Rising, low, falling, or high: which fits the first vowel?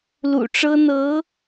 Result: low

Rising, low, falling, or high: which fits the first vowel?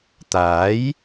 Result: rising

